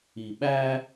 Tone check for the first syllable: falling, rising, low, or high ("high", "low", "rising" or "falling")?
low